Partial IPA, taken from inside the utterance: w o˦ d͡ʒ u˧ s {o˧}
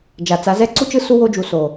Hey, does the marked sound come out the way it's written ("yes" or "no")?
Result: no